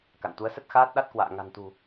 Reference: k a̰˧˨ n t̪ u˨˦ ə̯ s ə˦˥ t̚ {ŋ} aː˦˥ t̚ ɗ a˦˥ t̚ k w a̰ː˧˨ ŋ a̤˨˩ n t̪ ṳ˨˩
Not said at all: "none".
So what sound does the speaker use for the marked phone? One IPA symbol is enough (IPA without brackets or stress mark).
x